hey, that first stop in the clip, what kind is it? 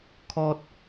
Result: aspirated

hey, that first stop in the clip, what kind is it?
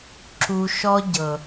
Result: click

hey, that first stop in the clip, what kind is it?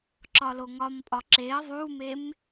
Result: click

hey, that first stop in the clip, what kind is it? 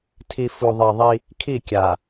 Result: aspirated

